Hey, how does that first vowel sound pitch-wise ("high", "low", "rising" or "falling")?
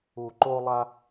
low